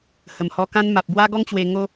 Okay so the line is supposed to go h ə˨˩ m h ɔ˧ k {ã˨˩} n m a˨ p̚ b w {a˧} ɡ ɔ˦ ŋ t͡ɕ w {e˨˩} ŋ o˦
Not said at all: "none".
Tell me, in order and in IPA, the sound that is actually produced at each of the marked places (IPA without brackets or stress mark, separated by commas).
ã˦, a˦, e˧